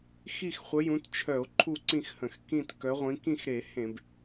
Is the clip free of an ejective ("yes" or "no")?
yes